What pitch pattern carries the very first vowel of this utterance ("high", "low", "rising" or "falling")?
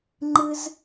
high